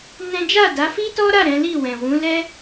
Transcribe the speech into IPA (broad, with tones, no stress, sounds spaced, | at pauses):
n ɛ̃˦ d͡ʒ a˦˨ d a˨˦ f i˦ t ɔ˦ ɾ a˦˨ ɾ ɛ̃˨˦ l i˦˨ w ɛ̃˨ w ũ˨˦ l ɛ˦